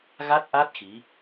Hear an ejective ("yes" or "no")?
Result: no